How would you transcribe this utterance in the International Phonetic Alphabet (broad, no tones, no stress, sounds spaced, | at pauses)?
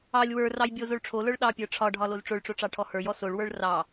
ɑ lʲ w ə˞ r ɑ j bʲ o z o ɭ ʈ͡ʂʰ o l ə˞ ɭ ɗ ɑ pʲ ə˞ ʈ͡ʂʰ ɒ ɖʱ ɒ l o z ʈ͡ʂ o ɭ ʈ͡ʂ o ʈ͡ʂ ɑ ʈʰ ɔ h ə˞ j ɔ s o ɭ w ə˞ ɭ r ɑ